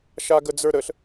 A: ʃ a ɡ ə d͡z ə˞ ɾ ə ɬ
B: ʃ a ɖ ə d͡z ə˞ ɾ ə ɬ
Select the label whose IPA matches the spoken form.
A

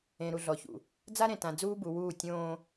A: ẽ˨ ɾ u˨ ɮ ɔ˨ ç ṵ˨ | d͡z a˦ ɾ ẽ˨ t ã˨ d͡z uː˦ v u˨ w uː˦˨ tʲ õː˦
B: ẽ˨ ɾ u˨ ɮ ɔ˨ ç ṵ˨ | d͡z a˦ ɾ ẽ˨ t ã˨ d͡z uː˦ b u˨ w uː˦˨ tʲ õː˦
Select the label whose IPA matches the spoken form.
B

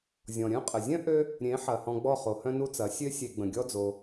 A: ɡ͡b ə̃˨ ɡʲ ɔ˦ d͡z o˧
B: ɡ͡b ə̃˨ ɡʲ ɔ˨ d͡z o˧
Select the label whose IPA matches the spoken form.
A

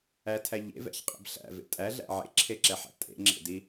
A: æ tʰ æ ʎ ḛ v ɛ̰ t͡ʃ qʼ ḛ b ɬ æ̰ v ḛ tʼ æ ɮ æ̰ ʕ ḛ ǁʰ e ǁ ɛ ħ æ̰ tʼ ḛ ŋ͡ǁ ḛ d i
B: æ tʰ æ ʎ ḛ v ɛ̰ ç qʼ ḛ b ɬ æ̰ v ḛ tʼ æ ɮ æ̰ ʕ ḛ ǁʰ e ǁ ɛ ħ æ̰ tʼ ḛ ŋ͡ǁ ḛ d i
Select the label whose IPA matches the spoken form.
B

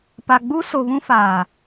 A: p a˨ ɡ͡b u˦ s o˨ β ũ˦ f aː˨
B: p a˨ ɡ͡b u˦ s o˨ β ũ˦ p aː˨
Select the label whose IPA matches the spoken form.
A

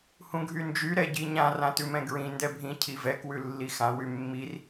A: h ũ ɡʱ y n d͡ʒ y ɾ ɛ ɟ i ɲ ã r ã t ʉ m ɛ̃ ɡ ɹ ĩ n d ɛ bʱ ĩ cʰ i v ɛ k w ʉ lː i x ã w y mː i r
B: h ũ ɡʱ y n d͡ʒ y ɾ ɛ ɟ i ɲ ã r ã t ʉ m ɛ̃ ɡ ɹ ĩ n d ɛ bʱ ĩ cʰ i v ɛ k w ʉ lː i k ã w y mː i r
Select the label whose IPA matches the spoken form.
A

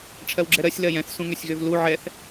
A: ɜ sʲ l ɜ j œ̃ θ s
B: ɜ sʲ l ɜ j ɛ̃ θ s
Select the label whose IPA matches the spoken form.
B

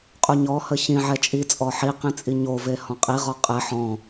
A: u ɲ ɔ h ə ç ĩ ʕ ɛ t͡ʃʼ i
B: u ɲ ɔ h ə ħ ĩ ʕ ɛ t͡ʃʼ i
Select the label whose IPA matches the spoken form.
A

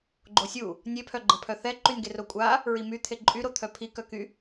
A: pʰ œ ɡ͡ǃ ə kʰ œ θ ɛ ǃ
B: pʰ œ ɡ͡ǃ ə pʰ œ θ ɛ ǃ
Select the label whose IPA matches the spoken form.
B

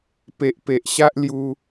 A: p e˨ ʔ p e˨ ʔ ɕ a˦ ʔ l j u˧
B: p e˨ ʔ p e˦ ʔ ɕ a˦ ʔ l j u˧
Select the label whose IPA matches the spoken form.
A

